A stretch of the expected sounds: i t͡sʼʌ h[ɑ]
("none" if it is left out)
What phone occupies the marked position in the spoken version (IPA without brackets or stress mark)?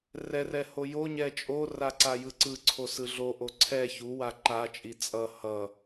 ʌ